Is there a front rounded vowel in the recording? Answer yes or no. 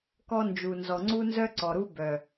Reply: yes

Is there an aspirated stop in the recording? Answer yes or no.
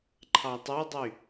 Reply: yes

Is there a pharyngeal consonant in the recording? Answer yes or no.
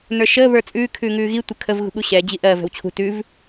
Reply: no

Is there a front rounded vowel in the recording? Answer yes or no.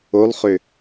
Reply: yes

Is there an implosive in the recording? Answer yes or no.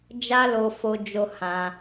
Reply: no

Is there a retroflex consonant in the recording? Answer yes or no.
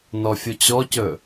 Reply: no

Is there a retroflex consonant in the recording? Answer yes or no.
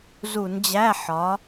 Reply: no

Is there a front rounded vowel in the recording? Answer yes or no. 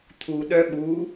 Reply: yes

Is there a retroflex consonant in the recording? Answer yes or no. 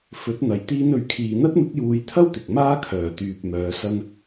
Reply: no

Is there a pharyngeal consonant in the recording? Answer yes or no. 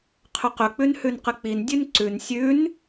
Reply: no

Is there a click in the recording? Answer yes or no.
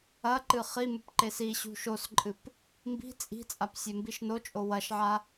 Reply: yes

